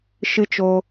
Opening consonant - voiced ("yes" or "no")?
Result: no